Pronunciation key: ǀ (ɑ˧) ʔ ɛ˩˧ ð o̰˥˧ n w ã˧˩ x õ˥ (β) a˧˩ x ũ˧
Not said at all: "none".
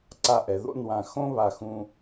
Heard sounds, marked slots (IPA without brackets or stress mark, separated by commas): a˧, β